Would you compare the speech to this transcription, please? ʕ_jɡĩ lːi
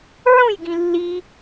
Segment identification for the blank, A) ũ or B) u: A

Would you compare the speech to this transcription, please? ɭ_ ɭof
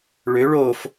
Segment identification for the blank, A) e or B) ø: B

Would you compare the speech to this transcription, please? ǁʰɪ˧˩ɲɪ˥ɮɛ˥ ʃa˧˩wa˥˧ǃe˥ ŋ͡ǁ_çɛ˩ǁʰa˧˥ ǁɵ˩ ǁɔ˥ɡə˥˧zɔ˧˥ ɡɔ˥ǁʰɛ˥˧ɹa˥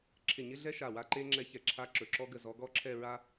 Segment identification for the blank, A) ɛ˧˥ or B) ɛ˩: A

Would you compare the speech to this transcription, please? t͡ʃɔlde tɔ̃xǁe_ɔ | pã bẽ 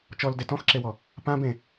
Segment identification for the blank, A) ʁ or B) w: B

